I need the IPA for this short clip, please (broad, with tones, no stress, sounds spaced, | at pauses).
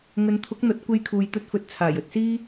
ŋ ɵ˨˧ n t̪ʰ ʊ˨˥ k̚ n̪ ɐ˨˥ t̚ kʷ e˧ j kʰ uː˨ j t̪ ɵ˧ t̚ f ɵ˨˥ t̚ t͡sʰ aː˨˩ j ɵ˨ t̚ s iː˥